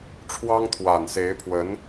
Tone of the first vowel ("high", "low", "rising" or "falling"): high